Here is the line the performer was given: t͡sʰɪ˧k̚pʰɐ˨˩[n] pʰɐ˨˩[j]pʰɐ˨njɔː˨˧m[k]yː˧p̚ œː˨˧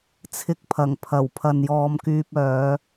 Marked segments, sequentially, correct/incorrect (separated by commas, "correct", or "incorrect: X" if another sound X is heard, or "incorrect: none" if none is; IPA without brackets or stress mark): incorrect: ŋ, incorrect: w, correct